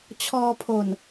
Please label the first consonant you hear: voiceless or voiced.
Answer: voiceless